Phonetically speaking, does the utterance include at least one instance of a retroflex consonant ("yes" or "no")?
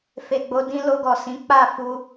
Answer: no